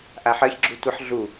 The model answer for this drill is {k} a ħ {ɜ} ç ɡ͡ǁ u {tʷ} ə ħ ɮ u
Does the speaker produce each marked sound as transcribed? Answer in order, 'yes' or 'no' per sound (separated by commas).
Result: no, yes, yes